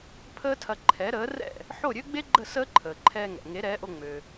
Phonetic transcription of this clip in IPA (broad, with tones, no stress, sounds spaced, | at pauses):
pʰ əː˥ tʰ ɐ˧ ǃʰ ɛ˩˥ ɾ əː˩˥ r ɛ̰˥˩ | ħ o˥˩ ɾʲ ø˥ ɡ͡b e˥ ɡ͡ǃ ə˥˩ s əː˥ ǃʰ əː˩ ǃʰ ɛː˧ ŋ ɛ̰˩ ŋ e˩˥ ɾ ɛː˩˥ ʔ o˧ ŋ͡m ø˩